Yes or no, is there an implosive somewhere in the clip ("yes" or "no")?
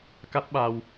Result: yes